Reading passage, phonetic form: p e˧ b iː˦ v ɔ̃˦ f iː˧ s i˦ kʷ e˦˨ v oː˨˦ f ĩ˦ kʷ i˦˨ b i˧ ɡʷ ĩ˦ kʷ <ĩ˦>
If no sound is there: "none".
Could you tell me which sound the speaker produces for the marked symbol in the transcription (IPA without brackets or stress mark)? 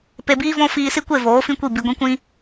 ĩ˦